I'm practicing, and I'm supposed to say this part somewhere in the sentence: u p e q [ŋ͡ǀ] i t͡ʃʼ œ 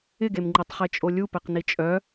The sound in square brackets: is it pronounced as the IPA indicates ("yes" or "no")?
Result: no